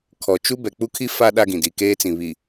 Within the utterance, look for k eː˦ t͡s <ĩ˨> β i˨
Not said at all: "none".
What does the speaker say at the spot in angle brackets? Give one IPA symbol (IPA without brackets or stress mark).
ĩ˨